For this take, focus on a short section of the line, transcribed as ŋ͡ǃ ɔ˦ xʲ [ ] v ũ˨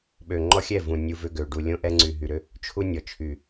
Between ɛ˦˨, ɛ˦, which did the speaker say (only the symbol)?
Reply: ɛ˦˨